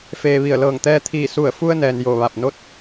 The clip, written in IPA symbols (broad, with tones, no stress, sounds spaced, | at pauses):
f eː˩ ʋ i˧˩ ə̯ l ɤː˧˩ ŋ t̪ ɛː˧ t̪ʰ iː˧˩ s u˧˩ ə̯ f u˧ ə̯ n ɛː˩ n j o˧˩ ʋ a˧˩ p̚ n o˥˨ t̚